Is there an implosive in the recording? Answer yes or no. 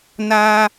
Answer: no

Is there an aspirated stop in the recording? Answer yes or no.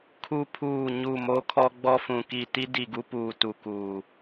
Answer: yes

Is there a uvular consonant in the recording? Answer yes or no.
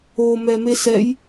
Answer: no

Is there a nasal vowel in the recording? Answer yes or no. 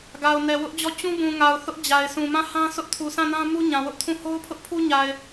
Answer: yes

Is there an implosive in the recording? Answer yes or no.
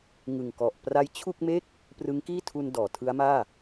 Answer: no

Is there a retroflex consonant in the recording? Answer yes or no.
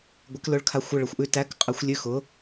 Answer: yes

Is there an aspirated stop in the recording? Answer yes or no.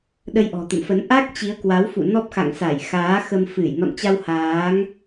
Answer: no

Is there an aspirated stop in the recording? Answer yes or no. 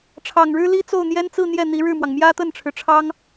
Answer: yes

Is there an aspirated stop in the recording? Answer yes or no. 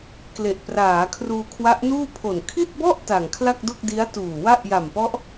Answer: yes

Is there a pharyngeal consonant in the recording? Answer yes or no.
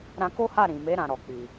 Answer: no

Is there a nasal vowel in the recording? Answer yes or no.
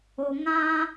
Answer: yes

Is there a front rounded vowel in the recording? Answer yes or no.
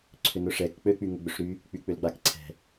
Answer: yes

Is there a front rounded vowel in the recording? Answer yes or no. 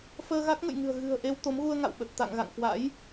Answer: no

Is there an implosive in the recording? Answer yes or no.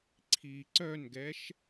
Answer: no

